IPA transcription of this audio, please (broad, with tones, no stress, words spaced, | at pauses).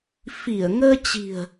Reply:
fi˧˩ə̯ŋəː˧t͡ɕi̤˨˩ə̯